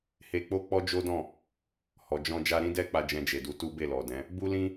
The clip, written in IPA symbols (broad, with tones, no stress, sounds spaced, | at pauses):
h e˧ k͡p o˦ k͡p ɔ˦ d͡ʒ o˦ d ɔ̃˦˨ | h ɔ˨ d͡ʒ ɔ̃˧ d͡ʒ a˧ ɾ ĩ˦ d ɛ˦ k͡p a˧ d͡ʒ ɛ̃˧ d͡ʒ e˨ d u˧ t u˦ b e˦˨ l ɔ˨ d ɛ̃˨˦ | b u˦ l ĩ˦